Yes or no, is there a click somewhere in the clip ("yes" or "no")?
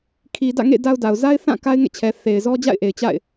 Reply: no